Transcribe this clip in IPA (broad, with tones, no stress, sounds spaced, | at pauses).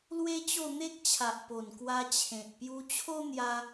l w e˦ t͡ɕ o˥˧ n̪ e˦ k̚ t͡ɕʰ a˨ ʔ p o˨˩ n k w a˧ t͡ɕʰ ẽ˨ t̚ p j u˧ t͡ɕʰ o˦ n̪ j a˧